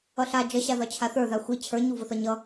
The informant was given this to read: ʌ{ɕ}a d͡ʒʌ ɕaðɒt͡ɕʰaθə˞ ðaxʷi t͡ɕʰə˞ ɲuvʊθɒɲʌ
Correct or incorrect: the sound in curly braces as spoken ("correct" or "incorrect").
incorrect